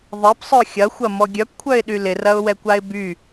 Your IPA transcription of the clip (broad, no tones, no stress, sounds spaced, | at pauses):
ðˤ e p sˤ œ xʲ ɐ xʷ ɐ m ɔ ɡʲ œ p kʷʰ œ ɪ̯ ɗ y l ɪ r ɐ ʊ̯ w ɛ kʷ a ɪ̯ b y